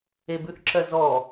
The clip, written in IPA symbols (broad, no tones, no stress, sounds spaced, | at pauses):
e b ʉ θ ǁ ɜ z ɔ